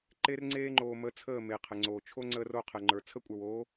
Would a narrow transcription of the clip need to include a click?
yes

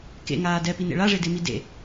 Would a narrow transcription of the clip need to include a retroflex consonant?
yes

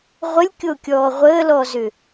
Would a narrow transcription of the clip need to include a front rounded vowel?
yes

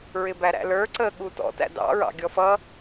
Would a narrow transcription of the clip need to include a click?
yes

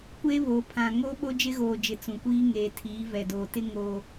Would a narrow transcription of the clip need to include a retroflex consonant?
no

